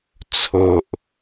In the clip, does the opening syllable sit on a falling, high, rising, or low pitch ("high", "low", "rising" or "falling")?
low